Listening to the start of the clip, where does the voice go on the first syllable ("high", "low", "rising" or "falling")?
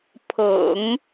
low